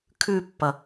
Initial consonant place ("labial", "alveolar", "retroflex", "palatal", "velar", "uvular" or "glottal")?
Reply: velar